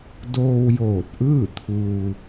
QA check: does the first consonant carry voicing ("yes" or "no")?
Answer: yes